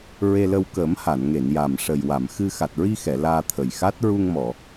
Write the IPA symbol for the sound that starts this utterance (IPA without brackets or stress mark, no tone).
ɹ